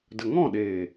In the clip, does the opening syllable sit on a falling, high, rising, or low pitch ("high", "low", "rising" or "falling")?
low